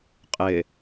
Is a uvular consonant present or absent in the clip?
present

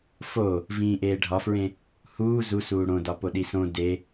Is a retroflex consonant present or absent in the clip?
present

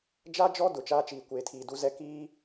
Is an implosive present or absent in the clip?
absent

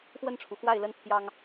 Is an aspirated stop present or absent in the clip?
present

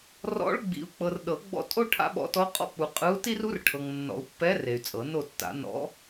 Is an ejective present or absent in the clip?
present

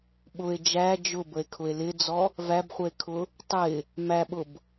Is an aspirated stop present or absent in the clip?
present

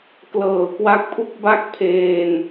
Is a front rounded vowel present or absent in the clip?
absent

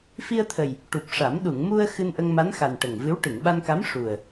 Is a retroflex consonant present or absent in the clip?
present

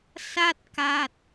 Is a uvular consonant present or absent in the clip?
absent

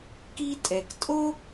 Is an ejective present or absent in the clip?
present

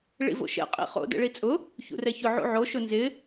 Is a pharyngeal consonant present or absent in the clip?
present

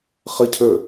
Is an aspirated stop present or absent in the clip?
present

